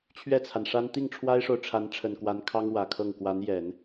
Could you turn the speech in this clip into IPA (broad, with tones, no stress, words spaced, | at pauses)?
t͡ɕʰɥɛ˥˩t͡sʰa˩nʂa˥n t̪i˥˩ŋʈ͡ʂʰwa˥ɪ̯ʂo˨ʊ̯ʈ͡ʂʰa˧˥n ʈ͡ʂʰə˨˩nkwa˧˥nkʰɑ˥ŋ wä˨˩kʰɤ˥˩ŋ kwa˧˥n jɛ˨˩˦n